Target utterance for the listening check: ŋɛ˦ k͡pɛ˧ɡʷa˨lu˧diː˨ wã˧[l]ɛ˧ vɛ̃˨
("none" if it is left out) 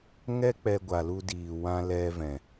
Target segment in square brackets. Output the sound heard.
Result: l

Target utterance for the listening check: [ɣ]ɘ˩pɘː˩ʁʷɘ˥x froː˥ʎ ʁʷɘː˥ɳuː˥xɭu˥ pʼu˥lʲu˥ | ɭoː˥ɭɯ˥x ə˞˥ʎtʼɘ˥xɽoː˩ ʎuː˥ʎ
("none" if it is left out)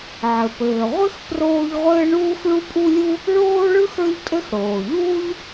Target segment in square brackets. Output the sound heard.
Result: ʕ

